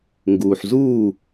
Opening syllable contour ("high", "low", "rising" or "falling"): low